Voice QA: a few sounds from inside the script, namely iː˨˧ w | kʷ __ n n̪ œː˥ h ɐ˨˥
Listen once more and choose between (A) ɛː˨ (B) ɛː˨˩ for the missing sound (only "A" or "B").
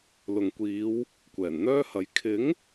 B